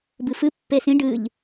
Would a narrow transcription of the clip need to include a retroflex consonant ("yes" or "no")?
yes